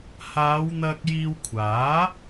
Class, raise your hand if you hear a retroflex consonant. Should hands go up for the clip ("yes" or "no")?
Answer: no